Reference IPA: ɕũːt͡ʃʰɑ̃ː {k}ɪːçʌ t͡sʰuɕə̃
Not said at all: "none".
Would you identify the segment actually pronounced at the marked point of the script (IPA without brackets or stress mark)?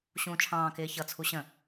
k